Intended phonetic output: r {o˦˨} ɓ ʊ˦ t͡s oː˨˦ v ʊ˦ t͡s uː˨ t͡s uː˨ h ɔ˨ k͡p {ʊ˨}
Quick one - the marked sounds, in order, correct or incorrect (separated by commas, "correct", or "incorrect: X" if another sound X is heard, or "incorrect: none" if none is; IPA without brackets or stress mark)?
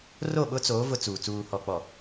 correct, incorrect: ɔ˨